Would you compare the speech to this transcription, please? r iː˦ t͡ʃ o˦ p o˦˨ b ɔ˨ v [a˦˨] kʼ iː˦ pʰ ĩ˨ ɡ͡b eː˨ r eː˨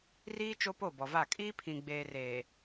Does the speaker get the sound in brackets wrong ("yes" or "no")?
no